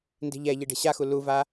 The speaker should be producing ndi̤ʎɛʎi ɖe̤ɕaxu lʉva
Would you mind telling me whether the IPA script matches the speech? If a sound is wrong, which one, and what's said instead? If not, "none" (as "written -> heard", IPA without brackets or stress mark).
ʉ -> u